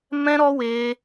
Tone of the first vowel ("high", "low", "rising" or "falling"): high